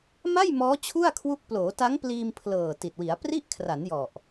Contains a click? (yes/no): no